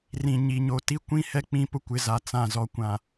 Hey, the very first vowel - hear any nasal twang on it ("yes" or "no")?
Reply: yes